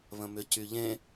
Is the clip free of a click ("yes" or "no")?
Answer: yes